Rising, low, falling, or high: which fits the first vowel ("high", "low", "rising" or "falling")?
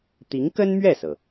rising